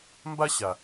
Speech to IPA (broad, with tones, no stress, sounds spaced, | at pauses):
m b a˦ ɕ a˨